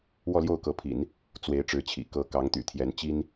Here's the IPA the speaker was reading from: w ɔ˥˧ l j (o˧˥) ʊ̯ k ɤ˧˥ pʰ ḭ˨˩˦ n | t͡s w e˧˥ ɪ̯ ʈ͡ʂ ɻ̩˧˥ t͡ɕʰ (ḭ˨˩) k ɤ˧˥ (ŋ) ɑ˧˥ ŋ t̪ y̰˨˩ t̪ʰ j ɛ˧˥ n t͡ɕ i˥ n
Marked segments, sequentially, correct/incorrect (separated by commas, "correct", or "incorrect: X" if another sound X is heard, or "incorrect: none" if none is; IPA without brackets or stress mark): incorrect: o˥˩, correct, incorrect: k